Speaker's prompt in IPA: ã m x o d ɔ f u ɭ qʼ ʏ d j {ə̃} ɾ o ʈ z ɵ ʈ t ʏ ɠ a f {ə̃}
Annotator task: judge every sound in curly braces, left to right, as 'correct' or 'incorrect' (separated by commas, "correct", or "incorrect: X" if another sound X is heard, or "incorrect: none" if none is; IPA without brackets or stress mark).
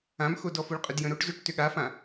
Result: correct, incorrect: ã